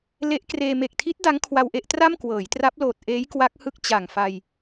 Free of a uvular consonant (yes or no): yes